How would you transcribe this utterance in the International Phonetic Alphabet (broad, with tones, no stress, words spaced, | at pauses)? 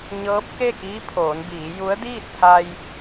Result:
ɲɤː˧˥p̚ke˥˨kiː˧˥pʰoː˩˧n biː˩˧ju˧˥ə̯diː˥˨t̚t̪ʰa˧j